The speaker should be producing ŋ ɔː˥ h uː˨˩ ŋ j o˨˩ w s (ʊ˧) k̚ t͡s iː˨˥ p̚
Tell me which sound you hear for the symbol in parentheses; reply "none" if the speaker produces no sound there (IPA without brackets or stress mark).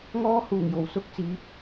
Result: ʊ˧